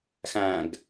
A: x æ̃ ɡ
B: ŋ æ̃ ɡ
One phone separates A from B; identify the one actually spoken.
A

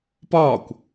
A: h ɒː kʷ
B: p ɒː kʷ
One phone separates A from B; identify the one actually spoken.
B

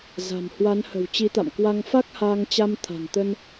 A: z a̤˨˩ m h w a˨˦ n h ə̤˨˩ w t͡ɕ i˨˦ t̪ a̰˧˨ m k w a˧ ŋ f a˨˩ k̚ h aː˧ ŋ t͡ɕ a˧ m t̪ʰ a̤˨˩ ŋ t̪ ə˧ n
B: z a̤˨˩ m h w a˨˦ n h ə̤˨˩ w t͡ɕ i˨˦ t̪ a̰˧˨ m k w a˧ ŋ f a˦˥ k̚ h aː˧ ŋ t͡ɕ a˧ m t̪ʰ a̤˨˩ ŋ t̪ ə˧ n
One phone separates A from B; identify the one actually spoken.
B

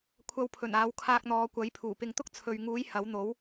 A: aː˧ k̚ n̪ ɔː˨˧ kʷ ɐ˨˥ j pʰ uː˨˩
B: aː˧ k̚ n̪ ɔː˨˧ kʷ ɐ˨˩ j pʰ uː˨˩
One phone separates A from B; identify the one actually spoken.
A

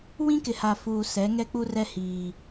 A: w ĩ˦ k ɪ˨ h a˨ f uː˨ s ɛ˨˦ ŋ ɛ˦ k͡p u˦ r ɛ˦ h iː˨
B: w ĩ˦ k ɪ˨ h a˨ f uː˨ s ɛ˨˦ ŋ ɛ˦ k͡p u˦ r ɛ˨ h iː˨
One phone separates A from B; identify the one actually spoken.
A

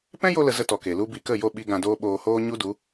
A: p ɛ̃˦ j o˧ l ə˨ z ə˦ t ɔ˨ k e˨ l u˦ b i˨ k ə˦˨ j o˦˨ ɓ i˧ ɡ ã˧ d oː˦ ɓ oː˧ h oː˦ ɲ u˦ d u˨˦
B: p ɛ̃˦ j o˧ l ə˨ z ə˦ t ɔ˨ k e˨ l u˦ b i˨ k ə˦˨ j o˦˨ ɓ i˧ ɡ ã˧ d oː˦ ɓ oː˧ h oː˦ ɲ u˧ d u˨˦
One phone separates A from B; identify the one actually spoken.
A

